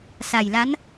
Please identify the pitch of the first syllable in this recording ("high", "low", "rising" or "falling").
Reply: low